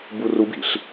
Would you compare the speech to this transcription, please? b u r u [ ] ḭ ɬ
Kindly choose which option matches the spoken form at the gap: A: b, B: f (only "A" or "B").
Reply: A